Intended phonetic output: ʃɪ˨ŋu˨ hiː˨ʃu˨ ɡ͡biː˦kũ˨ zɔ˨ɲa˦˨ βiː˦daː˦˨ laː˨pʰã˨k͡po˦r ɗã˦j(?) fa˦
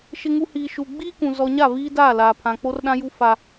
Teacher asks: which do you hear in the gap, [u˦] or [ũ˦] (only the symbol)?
u˦